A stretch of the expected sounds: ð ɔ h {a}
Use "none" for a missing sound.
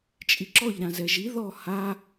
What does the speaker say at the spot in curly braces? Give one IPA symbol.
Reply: a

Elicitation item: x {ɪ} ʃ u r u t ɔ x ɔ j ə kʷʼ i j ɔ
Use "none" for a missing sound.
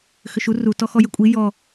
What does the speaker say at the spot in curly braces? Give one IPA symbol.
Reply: ʏ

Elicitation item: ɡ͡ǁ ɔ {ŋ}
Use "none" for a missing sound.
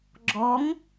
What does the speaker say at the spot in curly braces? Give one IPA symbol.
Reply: ŋ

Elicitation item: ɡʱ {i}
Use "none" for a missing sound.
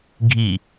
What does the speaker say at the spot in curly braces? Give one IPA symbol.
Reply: i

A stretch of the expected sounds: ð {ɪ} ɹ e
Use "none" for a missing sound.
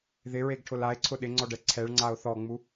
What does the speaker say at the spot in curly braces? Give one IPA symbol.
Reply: ɪ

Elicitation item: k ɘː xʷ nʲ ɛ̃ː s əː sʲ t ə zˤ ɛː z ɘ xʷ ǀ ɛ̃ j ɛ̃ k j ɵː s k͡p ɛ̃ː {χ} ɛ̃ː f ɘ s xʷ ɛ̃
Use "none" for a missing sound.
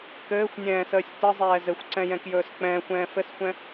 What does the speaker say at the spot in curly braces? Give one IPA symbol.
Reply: xʷ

